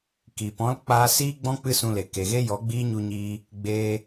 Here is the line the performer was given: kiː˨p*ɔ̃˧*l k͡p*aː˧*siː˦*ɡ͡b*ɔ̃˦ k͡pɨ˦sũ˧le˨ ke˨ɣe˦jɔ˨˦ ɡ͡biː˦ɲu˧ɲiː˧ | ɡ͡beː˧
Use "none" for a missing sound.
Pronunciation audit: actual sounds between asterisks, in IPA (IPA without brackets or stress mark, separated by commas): ɔ̃˦, aː˧, ɡ͡b